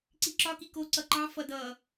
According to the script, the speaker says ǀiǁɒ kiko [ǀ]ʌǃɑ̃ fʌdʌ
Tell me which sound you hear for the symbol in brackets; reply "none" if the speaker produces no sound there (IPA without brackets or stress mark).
ǀ